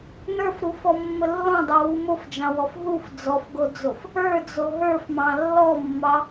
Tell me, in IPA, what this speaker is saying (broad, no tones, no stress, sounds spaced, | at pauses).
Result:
n ə˞ f ɾ u f ɔ mː ə lː ɔ̃ dˤ o w u m o f d͡ʒ ɑ̃ w ɔ f ɦ u f d͡z ɔ f ɡ o d͡z o f | ə˞ d͡z o ɦ ə˞ f m ɑ̃ lː ɔ mː ɑ